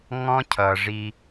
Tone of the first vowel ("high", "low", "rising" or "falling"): high